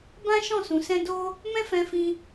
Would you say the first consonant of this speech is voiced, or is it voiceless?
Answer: voiced